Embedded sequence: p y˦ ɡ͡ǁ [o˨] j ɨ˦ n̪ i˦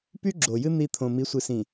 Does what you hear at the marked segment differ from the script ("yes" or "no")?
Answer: no